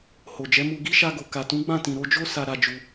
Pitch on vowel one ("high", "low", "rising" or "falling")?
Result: low